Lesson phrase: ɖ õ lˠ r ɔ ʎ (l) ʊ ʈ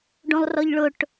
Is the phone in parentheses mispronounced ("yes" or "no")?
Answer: yes